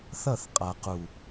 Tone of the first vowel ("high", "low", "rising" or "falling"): falling